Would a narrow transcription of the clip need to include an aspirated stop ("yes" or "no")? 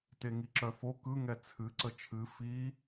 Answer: yes